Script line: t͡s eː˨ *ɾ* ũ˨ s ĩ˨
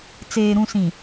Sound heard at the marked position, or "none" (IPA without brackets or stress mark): ɾ